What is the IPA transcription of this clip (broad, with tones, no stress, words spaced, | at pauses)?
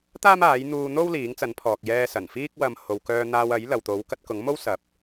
t̪aː˥maː˨˥jn̪uː˧n̪o˥w liː˨˥ŋt͡sɐ˨˥npʰɔː˨k̚ jɛː˧ sɐ˨˩nfiː˥k̚wɐ˧m ho˨wkœː˧n̪aː˧wɐ˨˥j lɐ˨wt̪o˨˥wkɐ˨˥t̚ kʊ˨˥ŋmo˥w sɐ˨˥p̚